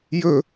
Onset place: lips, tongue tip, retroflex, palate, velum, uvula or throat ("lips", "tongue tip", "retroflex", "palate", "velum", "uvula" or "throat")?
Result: palate